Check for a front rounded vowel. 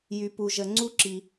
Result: present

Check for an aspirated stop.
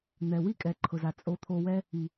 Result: present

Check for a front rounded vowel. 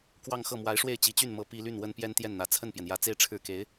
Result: present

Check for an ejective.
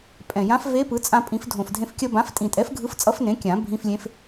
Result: present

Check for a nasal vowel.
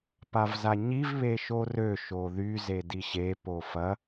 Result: absent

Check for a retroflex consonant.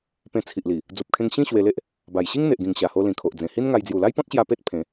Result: absent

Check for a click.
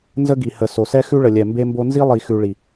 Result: absent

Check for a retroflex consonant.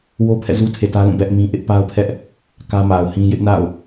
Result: absent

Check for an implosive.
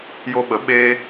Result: present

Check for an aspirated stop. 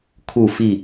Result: present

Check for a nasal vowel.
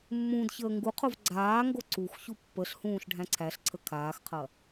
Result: present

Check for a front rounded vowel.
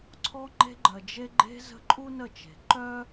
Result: present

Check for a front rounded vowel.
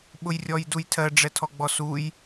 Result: absent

